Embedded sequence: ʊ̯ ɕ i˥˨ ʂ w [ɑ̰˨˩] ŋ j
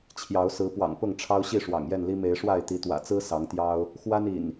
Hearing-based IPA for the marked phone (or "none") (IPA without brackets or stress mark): ɑ̰˨˩